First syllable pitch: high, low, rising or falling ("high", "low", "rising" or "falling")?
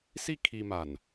falling